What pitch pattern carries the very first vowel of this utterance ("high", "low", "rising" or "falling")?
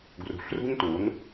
low